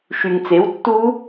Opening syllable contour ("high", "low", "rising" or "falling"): low